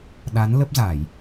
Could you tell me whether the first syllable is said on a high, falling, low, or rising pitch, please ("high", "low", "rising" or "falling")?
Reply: rising